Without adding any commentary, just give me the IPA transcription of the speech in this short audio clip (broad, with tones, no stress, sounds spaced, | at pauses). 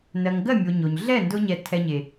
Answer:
n ɜ˨ ŋ ɡ ɜ˦˨ mʲ o˨ ɲ o˨ ɲ ɮ ɛ˦˨ n d ʊ˧ ɲ ɛ˧ tʰ ɛ˧ ɲ e˨